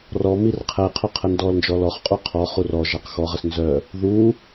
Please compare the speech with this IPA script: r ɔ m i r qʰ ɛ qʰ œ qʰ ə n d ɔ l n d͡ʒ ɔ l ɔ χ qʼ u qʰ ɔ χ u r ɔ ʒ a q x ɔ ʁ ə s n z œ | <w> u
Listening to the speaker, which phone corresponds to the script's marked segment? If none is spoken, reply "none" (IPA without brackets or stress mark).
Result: ð